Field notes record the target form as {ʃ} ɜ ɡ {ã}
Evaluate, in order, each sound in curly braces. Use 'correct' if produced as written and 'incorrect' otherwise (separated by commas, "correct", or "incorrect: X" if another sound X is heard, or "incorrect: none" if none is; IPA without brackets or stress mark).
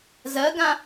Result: incorrect: z, correct